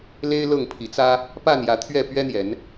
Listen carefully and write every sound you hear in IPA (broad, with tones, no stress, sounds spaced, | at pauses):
l e˦ ɪ̯ l ɤ˥˨ ŋ pʰ i˨˦ t͡s ä˦ | p a˥˨ n j ä˨˦ t̪ʰ ɥ ɛ˥˨ p ɥ ɛ˦ n̪ j ɛ˨˦ n